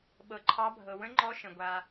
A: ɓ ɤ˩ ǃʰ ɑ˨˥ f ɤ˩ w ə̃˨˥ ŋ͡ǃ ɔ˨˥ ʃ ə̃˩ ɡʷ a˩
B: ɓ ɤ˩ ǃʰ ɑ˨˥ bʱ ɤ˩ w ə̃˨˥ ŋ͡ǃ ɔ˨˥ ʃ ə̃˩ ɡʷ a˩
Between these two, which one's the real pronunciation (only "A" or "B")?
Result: B